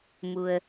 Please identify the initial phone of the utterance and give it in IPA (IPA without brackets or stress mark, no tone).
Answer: m